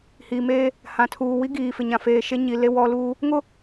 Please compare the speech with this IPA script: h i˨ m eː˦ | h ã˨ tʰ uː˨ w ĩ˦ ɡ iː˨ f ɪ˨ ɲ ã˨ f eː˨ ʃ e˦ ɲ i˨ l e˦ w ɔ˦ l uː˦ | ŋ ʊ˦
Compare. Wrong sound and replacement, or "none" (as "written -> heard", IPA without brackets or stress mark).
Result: ĩ˦ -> i˦